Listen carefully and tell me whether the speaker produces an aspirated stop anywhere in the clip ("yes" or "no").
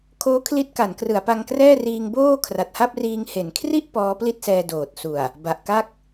yes